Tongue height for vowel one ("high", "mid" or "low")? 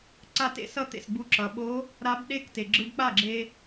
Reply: low